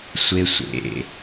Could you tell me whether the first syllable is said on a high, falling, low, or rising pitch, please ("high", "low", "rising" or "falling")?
high